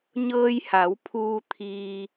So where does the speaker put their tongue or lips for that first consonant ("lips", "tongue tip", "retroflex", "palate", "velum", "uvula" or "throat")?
palate